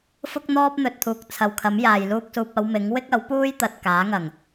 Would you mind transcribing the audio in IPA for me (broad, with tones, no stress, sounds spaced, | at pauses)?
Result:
f ʊ˥ k̚ n̪ ɔː˥ p̚ n̪ ɵ˨ t̚ t̪ʰ uː˨ k̚ t͡sʰ ɐ˨ w kʰ ɐ˨˥ m j aː˨ j l uː˥ k̚ s uː˧ p̚ ɐ˨˧ w m ɪ˨˥ ŋ w ɪ˥ k̚ ɐ˨˥ w p uː˥ j t̪ ɐ˨ t̚ k aː˨˥ ŋ ɐ˨˩ ŋ